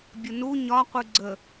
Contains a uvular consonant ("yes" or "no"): yes